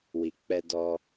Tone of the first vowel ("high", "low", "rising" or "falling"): low